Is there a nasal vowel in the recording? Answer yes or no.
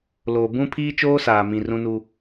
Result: yes